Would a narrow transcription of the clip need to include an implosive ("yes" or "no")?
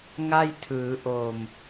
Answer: no